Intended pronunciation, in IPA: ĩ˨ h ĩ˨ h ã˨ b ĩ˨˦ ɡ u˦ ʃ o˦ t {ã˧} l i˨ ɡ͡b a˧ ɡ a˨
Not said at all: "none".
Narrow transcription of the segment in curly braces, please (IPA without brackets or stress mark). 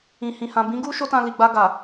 ã˧